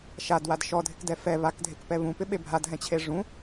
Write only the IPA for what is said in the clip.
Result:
ʃ a d w a d ʃ ɔ dʱ ɪ k d ɛ f ɛ β a k dʱ e k p ɛ β ũ p ɪ ɓ e bʱ a d ɦ ɛ̃ t͡ɕʰ e ʐ ũ

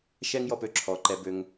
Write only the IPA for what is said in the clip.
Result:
ʃ ɛ˦ ŋ j ɔ˧ p ø˧ ǁʰ ɔ˨ ǃ ɛ˧ b ø˧ ŋ

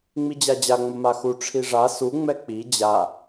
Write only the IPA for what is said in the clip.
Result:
ŋ͡m i d͡ʑ a d͡ʑ a ŋ͡m ə m a x u ʈ͡ʂʰ i ʐ a s u ŋ͡m ɛ k͡p i d͡ʑ a

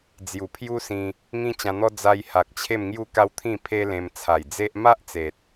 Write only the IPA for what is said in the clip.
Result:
d͡z j u˨˩ pʰ j u˦ s ĩ˧ | ŋ ĩ˦ t͡ɕ ã˧ n̪ ɔ˦ d͡z a˧ j h a˨ k̚ t͡ɕʰ e˥˧ m ŋ j u˥˧ k a˦ w t̪ʰ ĩ˥˧ pʰ e˦ l ẽ˧ m t͡sʰ a˨˩ j d͡z e˦ ʔ m a˦ ʔ t͡s e˨ t̚

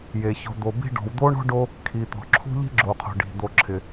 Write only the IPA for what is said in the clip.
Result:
j e˩ ç ɔ̤˨ d̪ o˨ b i̤˦ ɖ ɔ̤˨ w d̪ o˦ ɳ ɔ̤˥ ɖ o˦ | kʰ i˩ t̪ ɔ̤˩ ǁʰ ṳ˦ ʎ i̤˦ ɡ͡ǁ o˩ qʰ o̤˩ ɖ i̤˩ d̪ o˨ ǁʰ ɪ˩

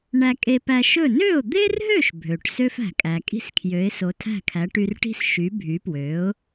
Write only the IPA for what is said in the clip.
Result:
ɳ æ˧ kʼ e˧ p æ˧ ʃ ɵ˥˩ n ø˥˩ ʊ̯ d̪ e˥ r ɦ ø˥˩ ʃ bʱ ø˩ ʈ s ø˥ f æ̤˩ kʼ æ˩ kʼ i̤˥ s kʰ j ø˩˥ ɪ̯ s o˩˥ tʰ æ̤˥˩ kʰ æ˩˥ ʈ y˧ r ʈ i̤˥ s ʃ y˩˥ bʱ y˩˥ p w ø˩˥ ʊ̯

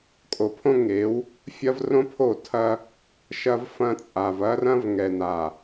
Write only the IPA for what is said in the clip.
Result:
kʼ o˨ pʰ õ˦ ŋ e˨˦ w | fʲ ɐ˦ v r õ˦ pʰ o˦˨ tʰ ɐ˦ | ʃ ɐ˦ v f ɐ̃˦ t͡sʼ a˨ v ɐ˦ r ɐ̃˦ v ŋ ɛ˨ n a˨

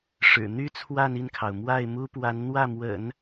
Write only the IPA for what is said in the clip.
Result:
ʂ ɻ̩˨˩ n̪ y˥ t͡sʰ w a˥˧ n i˥˩ n kʰ ɑ˩ ʊ̯ m w a˥˩ ɪ̯ m u˥ p w a˧˥ n n̪ w ä˥˩ m w ə̰˨˩˦ n

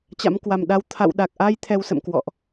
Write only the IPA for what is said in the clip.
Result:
t͡ɕ a̰˧˥ m k w a˨˩ m ɗ a˧ w t̪ʰ a̰˧˨ w ɗ a˨˩ k̚ ʔ a˧ j t̪ʰ ɛ˧ w s ə̰˧˨ m k w ɔ̰˧˨ ʔ

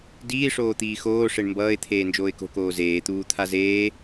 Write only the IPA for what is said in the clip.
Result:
d iː ʂ oː t̪ iː x oː ʂ e ɳ m b ʌː ɪ̯ t̪ʰ eː n d͡ʒ oː ɪ̯ k o̤ k oː z eː t̪ uː t̪ʰ a z eː

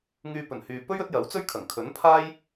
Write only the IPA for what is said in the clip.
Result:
ŋ yː˧ p ɵ˨˩ n h yː˨ p ɵ˥ ɥ ɵ˨˥ t̚ j ɐ˨˥ w t͡s ɵ˥ ɥ kʰ ɐ˨˩ ŋ kʰ ɵ˨˥ n pʰ aː˥ j

